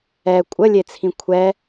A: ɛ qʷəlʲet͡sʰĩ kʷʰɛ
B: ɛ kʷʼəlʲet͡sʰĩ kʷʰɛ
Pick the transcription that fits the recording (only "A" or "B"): B